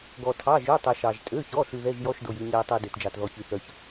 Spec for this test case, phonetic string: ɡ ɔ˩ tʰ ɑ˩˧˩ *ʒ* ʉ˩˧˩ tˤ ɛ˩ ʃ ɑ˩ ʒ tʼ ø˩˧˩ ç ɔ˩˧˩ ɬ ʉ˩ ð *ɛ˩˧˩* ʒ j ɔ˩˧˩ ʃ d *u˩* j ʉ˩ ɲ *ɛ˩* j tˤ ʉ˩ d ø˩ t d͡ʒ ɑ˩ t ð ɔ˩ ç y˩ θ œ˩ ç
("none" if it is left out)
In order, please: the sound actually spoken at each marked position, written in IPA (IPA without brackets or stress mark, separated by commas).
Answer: ʒ, ɛ˩˧˩, o˩, ɛ˩